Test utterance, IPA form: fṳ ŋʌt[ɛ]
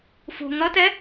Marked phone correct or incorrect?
correct